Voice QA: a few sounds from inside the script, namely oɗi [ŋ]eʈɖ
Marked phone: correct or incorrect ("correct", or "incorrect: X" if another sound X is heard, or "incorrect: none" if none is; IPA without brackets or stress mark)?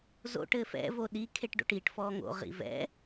incorrect: kʰ